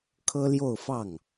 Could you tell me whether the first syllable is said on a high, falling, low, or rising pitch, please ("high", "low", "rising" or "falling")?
high